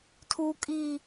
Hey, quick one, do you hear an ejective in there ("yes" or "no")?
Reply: yes